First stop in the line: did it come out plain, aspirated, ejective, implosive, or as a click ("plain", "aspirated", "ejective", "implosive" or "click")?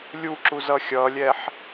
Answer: click